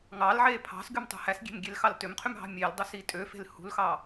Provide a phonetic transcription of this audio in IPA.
ŋ ɑ l ʕ e pʰ ɑ̤ s ɡ y m tˤ ṳ h æ s ɡʲ e̤ m ɡʲ e l x ɑ l t ø m qʰ y m ɦ ɑ̤ mʲ e l dˤ ø s i tʼ ø f e̤ l h ṳ l x ɑ

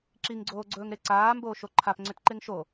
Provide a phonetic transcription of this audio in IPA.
ǁ i ŋ ɡ͡ǀ oː ɡ͡ǀ ɵː ŋ ɾ e ǀ aː m b oː ʃ o ǃʰ a p ŋ͡ǀ ʏ t ǃ e ŋ ʃ o

